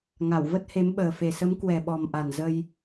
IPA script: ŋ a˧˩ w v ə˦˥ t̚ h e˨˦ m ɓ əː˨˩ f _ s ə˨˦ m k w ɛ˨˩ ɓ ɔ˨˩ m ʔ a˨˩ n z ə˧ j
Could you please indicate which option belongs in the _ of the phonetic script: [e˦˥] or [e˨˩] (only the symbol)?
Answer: e˨˩